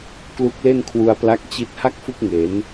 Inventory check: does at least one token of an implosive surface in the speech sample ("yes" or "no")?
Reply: no